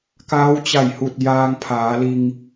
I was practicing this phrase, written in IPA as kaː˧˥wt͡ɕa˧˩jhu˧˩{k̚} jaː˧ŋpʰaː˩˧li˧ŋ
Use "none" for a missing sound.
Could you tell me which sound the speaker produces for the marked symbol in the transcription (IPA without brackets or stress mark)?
t̚